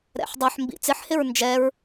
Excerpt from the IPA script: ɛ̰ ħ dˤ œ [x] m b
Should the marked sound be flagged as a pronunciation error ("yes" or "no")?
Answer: yes